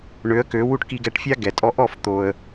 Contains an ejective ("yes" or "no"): yes